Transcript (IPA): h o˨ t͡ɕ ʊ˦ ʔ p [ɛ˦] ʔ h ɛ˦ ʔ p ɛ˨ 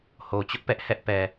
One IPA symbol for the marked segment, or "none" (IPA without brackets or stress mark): ɛ˦